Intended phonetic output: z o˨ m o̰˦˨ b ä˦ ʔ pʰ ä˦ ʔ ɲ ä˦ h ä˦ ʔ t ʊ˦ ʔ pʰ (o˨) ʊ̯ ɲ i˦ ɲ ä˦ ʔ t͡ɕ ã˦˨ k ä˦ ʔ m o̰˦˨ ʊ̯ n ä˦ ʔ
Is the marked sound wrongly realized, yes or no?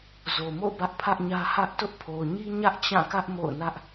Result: no